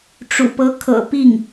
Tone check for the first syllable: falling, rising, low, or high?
low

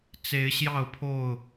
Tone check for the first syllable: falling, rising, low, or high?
rising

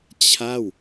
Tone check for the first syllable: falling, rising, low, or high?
falling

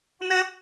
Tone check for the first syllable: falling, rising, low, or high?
high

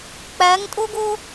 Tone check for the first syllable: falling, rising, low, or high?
rising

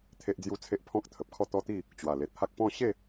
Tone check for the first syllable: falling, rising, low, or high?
high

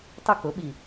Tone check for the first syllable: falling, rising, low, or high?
falling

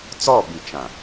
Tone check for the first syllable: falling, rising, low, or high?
falling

